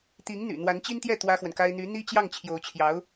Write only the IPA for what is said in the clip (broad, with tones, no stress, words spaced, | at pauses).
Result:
t̪i˧˥ŋn̪y̰˨˩ n̪wa˧˥nt͡ɕi˥nt̪jɛ˥˩ t̪wä˥xwə˨nka˥ɪ̯ n̪y˧˥ n̪i˥t͡ɕjɑ˥˩ŋ t͡ɕʰjo˧˥ʊ̯t͡ɕʰjɑ˧˥ʊ̯